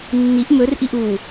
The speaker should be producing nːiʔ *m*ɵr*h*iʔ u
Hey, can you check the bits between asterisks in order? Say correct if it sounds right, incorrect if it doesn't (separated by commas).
correct, incorrect